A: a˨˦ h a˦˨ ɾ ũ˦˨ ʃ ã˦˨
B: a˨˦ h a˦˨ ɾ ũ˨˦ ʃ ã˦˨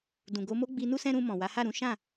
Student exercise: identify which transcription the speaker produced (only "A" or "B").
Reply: B